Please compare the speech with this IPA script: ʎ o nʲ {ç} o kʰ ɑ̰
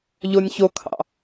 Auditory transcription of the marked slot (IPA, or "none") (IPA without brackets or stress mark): ç